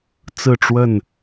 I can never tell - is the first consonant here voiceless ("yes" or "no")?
yes